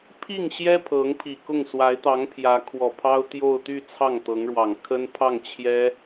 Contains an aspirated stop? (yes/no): yes